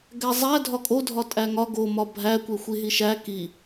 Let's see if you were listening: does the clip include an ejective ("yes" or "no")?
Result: yes